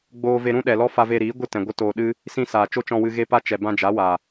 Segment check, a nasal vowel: present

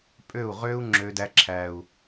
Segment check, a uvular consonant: present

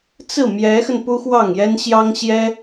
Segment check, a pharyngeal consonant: absent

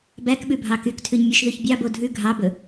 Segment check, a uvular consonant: absent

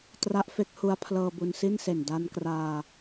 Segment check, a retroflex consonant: absent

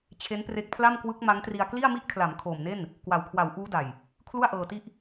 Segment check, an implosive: absent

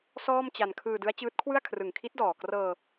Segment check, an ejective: absent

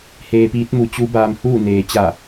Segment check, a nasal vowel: absent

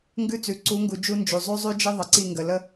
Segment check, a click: present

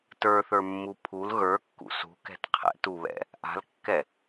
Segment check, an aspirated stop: present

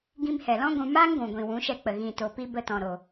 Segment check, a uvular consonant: absent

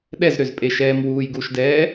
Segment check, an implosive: present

